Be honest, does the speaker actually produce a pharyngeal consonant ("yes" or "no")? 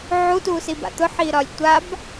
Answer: yes